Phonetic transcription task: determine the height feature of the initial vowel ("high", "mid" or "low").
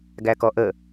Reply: low